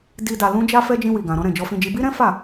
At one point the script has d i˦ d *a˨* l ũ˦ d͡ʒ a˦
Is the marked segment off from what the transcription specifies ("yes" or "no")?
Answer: yes